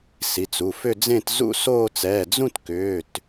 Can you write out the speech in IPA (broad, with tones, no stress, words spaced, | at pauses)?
si˩˧˩t͡su˩˧˩fʏ˥˧ d͡zẽ˥˧tzṵ˥˧soː˥˧t͡s ɛ˩˧˩d͡zũ˥˧tkʏː˩˧˩t